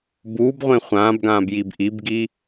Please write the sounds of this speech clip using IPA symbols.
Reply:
buːbʁʷẽ χʷãːbɡãːb jibʔibɡi

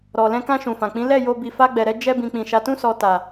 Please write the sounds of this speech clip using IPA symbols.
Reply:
ɾɔ˨lɛ̃˧kã˧ ʃũ˨fã˨k͡pĩ˨˦ lɛ˦˨ jo˧ bi˧fa˦ɡ͡bɛ˧ɾɛ˦ d͡ʒɛ˧bĩ˨k͡pĩ˨ ʃa˨tũ˧sɔ˨ ta˨

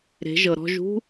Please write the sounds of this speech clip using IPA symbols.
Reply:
ɾe̤˩˧ʒɤ˩ ɾɔ̤˧ʒṳ˥

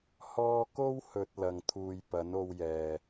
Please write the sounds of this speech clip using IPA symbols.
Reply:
hɔː˧ko˥whɵ˨t̚ lɐ˧ŋt̪ʰuː˧j pɐ˨˥no˧wjɛː˨

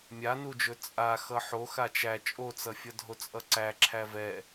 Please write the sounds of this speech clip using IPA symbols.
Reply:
mʲanud͡ʒɵ t͡sʼa xʌħo xat͡ʃæ t͡ʃʼot͡sʌfʲʌ dʱot͡sʼʌǀæ ǁʰævɛ

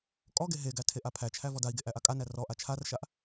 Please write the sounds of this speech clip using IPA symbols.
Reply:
kʼɔɡe ɦeɡæ tʰeʔapʰæt͡ʃʰæ vɔdai̯ɡe ʔæʔakʼanæ rɔʔa t͡ʃʰarʃaʔ

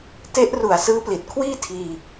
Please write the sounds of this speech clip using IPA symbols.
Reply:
te˦˥ʔ ru˨˩a̯sɯː˦˥pli˨˩t̚ kʰwiː˥˩tʰiː˧

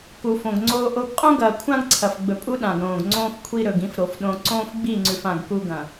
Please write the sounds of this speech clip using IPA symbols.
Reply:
ku˨fõ˨ɡŋ͡ǀoː˦ʔo˦ɡ qʼõ˦ɡɐː˨kʷʰã˦ɡǀʰɐ˨f ɡ͡bɵ˨pʼu˦ ɗã˨ɡɾõː˨ɡŋ͡ǀõː˦f kʷʰi˦ɾɵ˨ɡĩ˦f ɾo˨f ɗõ˨ ǀõː˦fɡ͡bi˦˨ŋ͡ǀʉ˨f ã˨ɡ ku˦ɡɐ̃˨

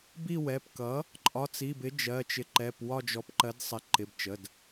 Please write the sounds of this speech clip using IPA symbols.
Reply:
bi˦˨wɛ˩˧˩pkʌ˩˥ | ǃʼɒ˩˧˩t͡si˩˧˩bɪ˩˥ d͡ʒɜ˩˧˩t͡ʃɪ˩˥ǃɛ˩˧˩p wɒ˦˨d͡ʒɔ˩˥pǃɜ˩˥d sˤɪ˩˥ǃɪ˩˧˩bt͡ʃə˩˧˩d

